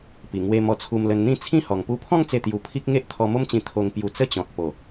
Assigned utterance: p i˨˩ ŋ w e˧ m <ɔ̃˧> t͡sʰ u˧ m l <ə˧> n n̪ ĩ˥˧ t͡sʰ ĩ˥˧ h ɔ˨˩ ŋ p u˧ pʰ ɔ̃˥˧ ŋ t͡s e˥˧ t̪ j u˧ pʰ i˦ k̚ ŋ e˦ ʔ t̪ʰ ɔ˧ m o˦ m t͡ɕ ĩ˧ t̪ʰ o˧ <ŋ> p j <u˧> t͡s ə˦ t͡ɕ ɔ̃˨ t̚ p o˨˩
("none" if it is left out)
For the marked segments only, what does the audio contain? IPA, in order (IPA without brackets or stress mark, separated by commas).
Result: ɔ˧, ə˧, ŋ, u˧